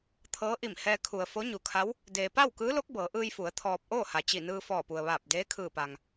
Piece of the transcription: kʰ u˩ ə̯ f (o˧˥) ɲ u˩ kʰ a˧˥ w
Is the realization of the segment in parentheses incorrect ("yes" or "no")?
no